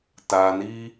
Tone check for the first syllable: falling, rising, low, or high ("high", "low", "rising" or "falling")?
low